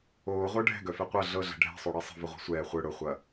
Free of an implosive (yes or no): yes